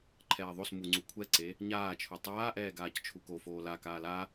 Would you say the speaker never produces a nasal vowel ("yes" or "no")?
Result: yes